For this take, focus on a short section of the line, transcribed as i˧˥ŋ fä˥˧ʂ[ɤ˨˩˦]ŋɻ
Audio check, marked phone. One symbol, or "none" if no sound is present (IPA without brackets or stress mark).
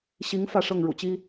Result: ɤ˥˩